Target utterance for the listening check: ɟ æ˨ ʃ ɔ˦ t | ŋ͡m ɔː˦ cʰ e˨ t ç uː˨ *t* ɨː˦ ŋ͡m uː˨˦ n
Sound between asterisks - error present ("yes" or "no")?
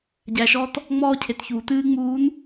no